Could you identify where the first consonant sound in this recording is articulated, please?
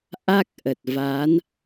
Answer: glottal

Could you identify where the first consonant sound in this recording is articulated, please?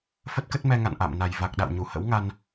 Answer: labial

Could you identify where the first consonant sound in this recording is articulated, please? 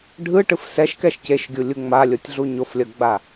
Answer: retroflex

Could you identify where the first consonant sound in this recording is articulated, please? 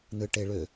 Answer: alveolar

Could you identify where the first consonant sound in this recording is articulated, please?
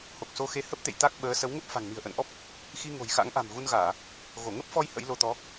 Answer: glottal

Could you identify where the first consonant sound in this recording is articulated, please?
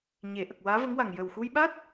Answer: palatal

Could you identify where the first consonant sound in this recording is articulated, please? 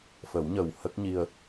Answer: labial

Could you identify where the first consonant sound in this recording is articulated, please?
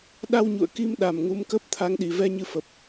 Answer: alveolar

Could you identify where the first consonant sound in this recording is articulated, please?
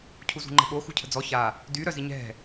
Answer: palatal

